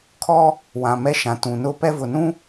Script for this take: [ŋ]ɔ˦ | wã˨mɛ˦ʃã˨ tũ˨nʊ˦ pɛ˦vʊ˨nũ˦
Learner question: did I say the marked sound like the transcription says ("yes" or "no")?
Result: no